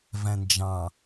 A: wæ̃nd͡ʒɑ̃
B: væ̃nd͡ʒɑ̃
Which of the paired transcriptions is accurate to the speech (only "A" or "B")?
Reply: B